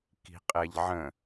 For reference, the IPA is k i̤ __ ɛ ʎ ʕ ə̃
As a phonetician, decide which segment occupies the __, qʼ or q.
qʼ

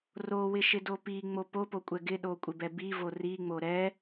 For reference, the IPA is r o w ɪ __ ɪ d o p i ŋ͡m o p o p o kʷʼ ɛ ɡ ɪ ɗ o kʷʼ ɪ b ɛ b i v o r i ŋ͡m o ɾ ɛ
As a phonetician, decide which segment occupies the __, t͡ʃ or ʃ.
ʃ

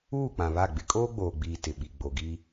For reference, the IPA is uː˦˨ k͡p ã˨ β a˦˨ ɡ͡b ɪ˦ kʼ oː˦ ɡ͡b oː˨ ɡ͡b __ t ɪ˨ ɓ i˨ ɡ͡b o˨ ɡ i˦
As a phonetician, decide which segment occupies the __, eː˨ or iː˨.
iː˨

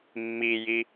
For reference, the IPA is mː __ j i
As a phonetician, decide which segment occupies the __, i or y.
i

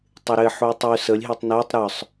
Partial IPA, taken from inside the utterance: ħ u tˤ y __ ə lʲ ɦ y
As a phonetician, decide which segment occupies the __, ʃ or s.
s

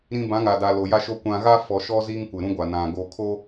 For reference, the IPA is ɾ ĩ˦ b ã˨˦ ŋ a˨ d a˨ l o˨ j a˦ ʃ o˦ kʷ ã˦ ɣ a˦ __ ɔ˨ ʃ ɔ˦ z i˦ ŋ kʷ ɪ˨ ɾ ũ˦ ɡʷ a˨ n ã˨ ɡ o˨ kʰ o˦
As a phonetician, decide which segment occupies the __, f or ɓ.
f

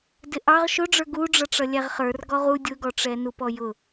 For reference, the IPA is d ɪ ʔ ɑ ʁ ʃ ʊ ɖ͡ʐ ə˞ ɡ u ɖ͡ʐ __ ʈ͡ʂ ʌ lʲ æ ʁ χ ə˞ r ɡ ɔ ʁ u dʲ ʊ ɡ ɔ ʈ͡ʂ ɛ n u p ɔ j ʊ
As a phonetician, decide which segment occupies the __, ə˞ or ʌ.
ʌ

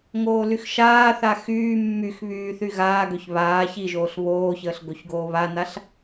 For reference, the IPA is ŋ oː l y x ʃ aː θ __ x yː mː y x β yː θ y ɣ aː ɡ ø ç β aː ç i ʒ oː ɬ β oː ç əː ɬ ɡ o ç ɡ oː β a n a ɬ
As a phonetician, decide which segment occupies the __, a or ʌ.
a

